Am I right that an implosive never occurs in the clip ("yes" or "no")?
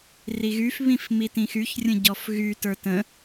yes